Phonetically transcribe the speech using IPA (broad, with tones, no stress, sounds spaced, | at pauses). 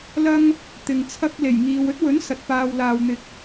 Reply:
l ɐ˥ ŋ | t̪ ɪ˨ ŋ t͡sʰ ɐ˥ k̚ l e˨˩ j ŋ iː˨ w ɵ˥ t̚ w ɵ˨˥ n s ɐ˨ t̚ p aː˧ w l aː˨ w n̪ ɪ˨ k̚